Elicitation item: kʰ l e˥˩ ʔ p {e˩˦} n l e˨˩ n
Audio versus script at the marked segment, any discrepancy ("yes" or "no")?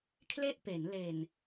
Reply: no